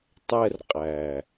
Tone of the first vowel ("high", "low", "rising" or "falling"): high